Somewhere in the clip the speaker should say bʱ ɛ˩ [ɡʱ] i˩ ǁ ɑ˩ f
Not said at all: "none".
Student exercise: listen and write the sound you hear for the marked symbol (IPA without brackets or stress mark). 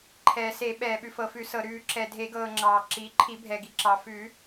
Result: ɡ